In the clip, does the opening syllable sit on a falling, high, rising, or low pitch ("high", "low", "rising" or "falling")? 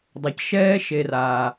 low